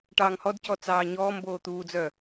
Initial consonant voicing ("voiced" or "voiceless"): voiceless